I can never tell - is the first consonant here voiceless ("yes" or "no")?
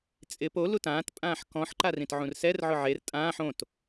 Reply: yes